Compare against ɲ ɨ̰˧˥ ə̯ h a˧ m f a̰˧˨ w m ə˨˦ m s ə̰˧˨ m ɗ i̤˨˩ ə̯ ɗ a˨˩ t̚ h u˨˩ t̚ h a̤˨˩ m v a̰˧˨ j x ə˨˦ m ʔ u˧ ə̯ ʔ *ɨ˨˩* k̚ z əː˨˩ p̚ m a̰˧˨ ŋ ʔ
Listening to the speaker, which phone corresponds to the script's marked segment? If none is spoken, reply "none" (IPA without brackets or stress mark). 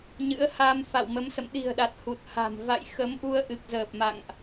ɨ˨˩